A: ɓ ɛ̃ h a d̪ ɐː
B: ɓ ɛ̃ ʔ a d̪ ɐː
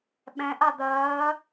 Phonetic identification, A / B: B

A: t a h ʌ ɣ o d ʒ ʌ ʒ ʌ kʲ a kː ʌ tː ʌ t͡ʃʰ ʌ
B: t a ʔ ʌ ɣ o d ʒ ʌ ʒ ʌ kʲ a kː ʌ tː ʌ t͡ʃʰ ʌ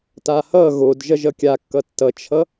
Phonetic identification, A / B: A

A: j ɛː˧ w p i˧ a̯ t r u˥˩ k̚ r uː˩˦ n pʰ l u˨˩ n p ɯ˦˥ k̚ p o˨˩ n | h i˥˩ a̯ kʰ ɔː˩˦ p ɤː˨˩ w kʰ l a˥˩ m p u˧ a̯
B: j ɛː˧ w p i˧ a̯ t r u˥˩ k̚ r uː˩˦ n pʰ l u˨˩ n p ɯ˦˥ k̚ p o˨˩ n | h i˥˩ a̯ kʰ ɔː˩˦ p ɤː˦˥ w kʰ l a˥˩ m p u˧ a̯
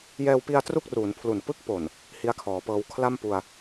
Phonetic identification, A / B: B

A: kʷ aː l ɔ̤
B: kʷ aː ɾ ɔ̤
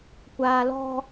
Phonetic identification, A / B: A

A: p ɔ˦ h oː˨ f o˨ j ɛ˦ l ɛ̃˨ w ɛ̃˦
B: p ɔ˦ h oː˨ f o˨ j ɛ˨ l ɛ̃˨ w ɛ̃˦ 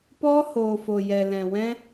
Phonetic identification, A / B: B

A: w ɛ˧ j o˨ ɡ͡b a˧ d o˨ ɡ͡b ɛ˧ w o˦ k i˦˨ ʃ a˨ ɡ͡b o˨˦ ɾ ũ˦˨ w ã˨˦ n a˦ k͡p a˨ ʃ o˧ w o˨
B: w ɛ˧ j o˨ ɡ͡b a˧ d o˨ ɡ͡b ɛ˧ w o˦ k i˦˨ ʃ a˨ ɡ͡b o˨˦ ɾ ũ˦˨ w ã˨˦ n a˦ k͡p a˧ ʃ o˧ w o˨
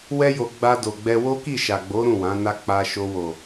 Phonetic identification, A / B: B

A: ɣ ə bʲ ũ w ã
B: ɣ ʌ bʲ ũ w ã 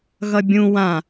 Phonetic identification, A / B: B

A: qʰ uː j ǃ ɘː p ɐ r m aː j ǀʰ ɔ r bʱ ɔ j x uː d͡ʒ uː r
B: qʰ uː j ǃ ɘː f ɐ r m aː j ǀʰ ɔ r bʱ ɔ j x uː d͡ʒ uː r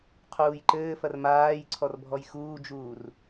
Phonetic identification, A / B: B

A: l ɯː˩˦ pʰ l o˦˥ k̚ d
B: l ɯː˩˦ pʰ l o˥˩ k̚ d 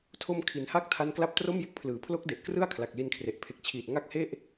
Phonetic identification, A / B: A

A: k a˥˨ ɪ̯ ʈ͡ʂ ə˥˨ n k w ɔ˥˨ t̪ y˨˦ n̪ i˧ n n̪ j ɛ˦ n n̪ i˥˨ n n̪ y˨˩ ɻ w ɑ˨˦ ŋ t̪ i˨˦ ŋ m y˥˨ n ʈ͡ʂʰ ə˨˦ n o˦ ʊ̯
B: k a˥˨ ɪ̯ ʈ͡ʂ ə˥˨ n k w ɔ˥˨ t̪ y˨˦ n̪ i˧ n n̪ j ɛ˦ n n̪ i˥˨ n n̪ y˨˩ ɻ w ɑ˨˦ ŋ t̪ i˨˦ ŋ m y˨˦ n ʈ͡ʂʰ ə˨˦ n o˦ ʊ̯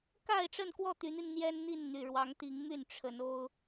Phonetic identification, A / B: A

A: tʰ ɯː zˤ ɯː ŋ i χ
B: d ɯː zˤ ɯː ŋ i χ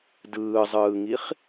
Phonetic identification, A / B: B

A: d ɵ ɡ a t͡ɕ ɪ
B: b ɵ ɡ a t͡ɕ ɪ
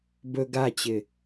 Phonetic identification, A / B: B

